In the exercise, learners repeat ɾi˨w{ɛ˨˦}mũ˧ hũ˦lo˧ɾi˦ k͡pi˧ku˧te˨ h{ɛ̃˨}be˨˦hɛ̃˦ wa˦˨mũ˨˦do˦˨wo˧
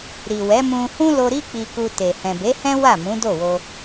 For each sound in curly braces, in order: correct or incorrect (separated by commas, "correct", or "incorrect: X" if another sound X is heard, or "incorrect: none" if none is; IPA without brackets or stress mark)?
correct, correct